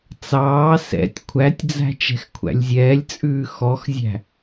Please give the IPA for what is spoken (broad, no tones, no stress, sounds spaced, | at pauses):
t͡s ɑː s ɛ̰ tʲ kʷʰ æ tʲ d͡z æ̤ t͡ʃ ɛ̤ x kʷʰ æ̰ lʲ zʲ ɛː lʲ t͡sʼ ʉː x ɔ x zʲ æ̤